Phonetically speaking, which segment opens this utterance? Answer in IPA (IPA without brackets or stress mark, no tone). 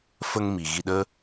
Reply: f